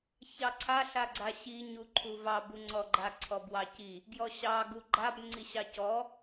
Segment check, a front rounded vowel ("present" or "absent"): absent